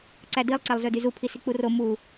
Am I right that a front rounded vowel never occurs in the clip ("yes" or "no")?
no